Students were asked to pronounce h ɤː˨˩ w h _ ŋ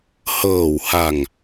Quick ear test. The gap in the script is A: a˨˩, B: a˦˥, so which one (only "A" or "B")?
A